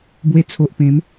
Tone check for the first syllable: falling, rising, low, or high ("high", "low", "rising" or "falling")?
low